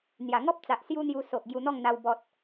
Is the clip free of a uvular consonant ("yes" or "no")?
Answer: yes